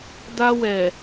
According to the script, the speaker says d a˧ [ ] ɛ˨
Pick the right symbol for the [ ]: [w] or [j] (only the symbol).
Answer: w